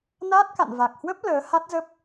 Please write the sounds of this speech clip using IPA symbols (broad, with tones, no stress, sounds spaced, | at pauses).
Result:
n aː˦˥ t̚ k a̰˧˨ n v a˨˩ k̚ h w ə˦˥ p̚ l əː˨˦ h a˦˥ t̚ z ə˦˥ p̚